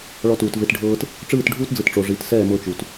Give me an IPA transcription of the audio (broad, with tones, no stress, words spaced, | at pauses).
ɭɔ˧tuː˨t ve˧tɖʱɤː˦t | ʈ͡ʂɯː˦˨tɖʱuː˦td͡zɯ˨tʈ͡ʂo˨ ʐi˨˦t sɛː˦˨ mɤ˧t͡ʃu˨t